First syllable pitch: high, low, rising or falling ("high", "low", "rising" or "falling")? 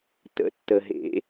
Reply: rising